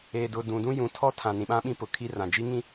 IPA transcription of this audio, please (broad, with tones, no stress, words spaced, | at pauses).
eː˨dʊ˨ dũ˨dũ˦ jũ˨tʰɔ˦ tʰã˨ nĩ˨ɓã˦ ɓĩ˦pʊ˨kʰi˦rã˨ d͡ʒi˦ŋĩ˦